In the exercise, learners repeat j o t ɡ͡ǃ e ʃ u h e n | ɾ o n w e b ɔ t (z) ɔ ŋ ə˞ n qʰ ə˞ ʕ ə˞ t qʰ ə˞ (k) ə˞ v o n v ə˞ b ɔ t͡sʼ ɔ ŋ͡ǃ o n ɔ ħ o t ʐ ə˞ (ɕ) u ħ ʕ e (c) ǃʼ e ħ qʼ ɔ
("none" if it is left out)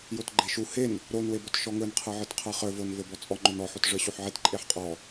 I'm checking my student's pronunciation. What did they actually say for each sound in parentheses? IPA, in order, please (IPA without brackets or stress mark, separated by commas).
ʃ, χ, ɕ, t